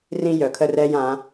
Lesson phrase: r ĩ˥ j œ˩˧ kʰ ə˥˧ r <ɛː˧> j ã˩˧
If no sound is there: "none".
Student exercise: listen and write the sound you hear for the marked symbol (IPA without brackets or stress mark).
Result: ɛː˧